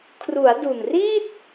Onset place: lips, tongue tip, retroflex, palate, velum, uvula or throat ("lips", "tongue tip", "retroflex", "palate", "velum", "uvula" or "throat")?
velum